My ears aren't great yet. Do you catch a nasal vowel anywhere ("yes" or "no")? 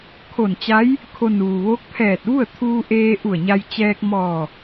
no